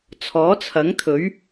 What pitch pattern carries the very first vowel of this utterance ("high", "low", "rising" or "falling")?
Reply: rising